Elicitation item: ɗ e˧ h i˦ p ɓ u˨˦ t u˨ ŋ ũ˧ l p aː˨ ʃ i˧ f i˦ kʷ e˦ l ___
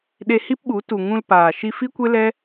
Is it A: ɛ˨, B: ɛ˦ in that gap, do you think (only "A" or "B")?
B